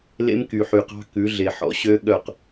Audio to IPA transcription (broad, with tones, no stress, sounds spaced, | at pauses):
l ḛ˦ m k y˨ ħ y˨ q ɑ̤˦ k ʉ˨˦ ɮ e˨ ħ ɔ̰˨ ɕ ø˦ ɠ œ˦˨ q